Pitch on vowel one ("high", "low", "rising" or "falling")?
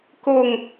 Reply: falling